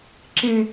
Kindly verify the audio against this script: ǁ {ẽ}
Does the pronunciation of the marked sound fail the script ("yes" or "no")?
no